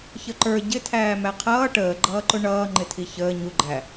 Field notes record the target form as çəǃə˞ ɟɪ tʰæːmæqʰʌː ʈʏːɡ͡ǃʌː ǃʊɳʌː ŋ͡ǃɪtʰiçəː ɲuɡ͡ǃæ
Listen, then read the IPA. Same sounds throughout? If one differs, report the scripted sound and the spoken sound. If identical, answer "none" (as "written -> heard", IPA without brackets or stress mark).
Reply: ʏː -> əː